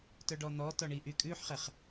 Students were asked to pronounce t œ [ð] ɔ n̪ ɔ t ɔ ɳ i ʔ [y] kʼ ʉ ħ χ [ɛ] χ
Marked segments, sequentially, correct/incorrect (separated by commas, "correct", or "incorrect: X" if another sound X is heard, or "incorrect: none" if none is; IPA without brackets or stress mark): incorrect: ɖ, correct, correct